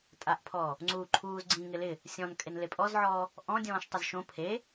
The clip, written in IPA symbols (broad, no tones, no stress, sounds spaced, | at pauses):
tʼ a ʔ pʰ ɔː | ŋ͡ǀ uː ǃʰ uː z ɡ͡ǀ ĩ ŋ ɪ l ɪ | sʲ ɔ̃ n kʼ e n l e pʼ ɔ z ʕ ɔː | ʔ ɔ̃ dʲ ɔ̃ː ʃ tˤ ɪ z ʃ õ pʰ e